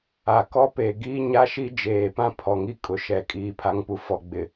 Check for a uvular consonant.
absent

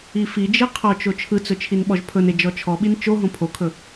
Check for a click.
absent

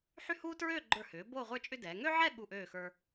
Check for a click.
present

